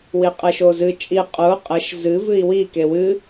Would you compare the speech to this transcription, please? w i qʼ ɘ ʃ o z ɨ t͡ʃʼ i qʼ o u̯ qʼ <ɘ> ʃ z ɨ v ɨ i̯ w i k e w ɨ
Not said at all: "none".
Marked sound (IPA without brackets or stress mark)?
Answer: ɘ